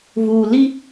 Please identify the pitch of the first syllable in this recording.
low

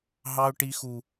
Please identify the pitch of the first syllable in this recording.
high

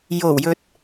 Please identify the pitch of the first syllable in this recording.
low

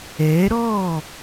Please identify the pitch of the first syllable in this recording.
rising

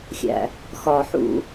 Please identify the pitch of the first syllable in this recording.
low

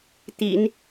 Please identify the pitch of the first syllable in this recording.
low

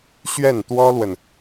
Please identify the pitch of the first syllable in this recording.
falling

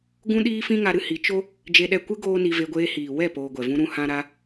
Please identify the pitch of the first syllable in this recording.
high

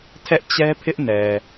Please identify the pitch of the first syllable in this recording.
high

